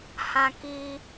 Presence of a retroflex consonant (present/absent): absent